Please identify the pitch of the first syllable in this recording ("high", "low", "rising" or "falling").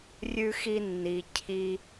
high